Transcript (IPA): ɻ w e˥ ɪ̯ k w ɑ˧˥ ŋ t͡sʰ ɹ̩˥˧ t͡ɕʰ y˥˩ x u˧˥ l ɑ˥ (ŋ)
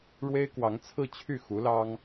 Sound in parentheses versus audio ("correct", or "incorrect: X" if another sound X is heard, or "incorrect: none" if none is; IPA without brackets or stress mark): correct